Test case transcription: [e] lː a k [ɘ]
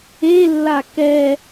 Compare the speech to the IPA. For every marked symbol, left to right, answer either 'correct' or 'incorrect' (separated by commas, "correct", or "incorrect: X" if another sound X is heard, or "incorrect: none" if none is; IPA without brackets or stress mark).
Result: correct, incorrect: ɛ